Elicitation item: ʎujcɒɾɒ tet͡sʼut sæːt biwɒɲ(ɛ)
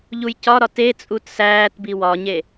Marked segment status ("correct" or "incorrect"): incorrect